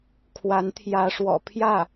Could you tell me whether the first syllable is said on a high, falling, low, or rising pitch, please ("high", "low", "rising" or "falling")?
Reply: rising